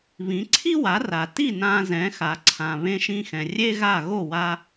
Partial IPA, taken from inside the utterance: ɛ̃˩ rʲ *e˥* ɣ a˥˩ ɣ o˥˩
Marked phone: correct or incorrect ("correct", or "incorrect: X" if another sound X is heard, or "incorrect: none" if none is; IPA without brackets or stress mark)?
correct